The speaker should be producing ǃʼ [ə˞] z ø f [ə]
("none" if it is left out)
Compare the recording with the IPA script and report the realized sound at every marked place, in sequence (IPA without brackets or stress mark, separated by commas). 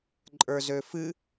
ə˞, ɨ